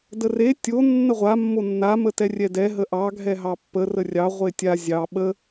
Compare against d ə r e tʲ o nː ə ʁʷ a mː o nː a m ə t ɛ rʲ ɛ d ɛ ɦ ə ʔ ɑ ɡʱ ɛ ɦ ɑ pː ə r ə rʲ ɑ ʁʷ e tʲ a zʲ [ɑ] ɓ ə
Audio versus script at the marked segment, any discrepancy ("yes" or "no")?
no